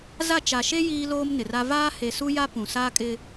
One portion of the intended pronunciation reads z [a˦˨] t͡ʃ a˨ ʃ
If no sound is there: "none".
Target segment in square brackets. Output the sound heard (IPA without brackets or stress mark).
a˦˨